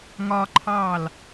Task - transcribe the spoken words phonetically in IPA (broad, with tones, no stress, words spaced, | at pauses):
ŋɒ˧ǃʰɑ˧˩l